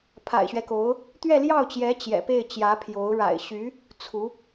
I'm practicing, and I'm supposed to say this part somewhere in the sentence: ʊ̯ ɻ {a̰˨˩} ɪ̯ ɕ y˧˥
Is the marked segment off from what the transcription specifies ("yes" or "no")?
no